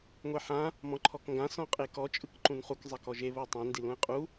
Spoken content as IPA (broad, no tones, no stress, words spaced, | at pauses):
ŋʷeħã | mɔ̃ǃʰɔkŋɡã sɔ̃qʼekɔ t͡ʃʼɯkǃũnχuk zˤɛkɔʒe βotˤẽ ndilũɪ̯qʼu